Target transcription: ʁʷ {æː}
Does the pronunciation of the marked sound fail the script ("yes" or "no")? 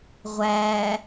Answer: no